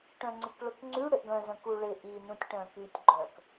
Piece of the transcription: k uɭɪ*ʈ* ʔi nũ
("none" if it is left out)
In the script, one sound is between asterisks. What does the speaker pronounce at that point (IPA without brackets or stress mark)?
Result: none